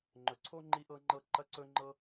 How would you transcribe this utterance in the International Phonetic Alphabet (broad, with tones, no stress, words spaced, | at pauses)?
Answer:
ŋ͡ǃɵ˨ǀʰo˥ ŋ͡ǃi˥ʔɤ˥ŋ͡ǃɤ˥ ǃɐ˥ǀɵ˥ŋ͡ǃɤ˥